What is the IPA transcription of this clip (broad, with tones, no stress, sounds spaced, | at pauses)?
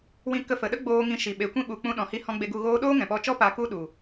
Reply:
w ĩ˧ k ə˧ f ə˨ ɗ ə˦ ɡ͡b oː˧ ŋ ĩ˧ ʃ i˨ ɓ e˨ kʷ ĩ˦ ɓ u˨ k͡p ũ˦ ɗ ɔ̃˨˦ h i˦ h ɔ̃˦ ɡ͡b e˧ ɡ u˧ ɣ oː˦ ɗ oː˦ ŋ ɛ̃˨ p ɔ˧ t͡ʃ ɔ˦ p a˧ k u˦ ɗ u˨